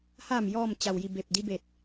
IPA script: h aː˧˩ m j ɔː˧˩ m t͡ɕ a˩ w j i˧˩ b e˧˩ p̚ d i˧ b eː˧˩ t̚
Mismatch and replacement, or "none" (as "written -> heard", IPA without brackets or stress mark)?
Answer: eː˧˩ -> e˧˩